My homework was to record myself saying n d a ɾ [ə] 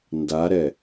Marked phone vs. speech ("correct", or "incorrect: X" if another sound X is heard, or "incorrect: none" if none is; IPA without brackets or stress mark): incorrect: ɛ